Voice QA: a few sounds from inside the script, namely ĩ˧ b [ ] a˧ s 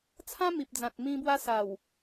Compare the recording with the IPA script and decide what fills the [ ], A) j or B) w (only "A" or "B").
B